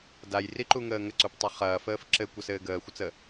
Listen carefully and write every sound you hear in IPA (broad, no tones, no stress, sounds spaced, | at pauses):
d a j r i ǃ u ŋ əː ŋ ə ǀ u p tˤ ə χ ɐː f əː f ǁ ɘ kʷ ə s ɘː ɡ əː xʷ ə t͡s ə